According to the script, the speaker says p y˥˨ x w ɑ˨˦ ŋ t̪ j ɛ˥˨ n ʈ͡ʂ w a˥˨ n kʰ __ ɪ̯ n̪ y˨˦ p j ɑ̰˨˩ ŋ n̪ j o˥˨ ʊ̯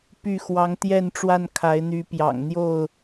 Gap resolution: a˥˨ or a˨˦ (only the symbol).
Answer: a˨˦